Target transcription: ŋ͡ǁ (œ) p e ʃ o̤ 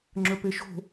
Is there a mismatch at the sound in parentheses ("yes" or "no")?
no